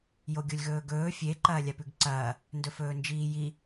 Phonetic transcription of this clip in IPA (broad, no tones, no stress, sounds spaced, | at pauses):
j o ɡʲ o lʲ ɣ ɵː ɡ ɵː fʲ e ǃ ɐː lʲ a p ʉ ɡ ǀ ɐː | n d ɵ f ɵː n d͡ʒ iː j i